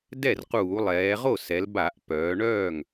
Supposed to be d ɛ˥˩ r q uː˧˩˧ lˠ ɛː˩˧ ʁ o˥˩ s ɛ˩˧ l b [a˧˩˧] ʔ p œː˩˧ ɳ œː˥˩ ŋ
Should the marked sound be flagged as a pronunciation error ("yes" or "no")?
no